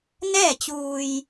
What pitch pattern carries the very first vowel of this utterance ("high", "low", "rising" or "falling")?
falling